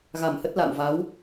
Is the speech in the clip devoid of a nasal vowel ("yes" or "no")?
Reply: yes